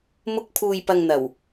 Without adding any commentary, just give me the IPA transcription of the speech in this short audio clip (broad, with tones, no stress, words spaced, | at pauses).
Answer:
mʊ˧k̚pʰuː˨jpɐ˨ŋ n̪ɐ˨˩w